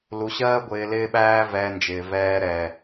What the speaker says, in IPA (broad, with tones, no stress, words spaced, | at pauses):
lu˧ɕɜː˦ɡʷɪː˧ lɪː˦ɓæː˦ vɛː˧nd͡ʒɪː˨vɛː˧ɾɛ˨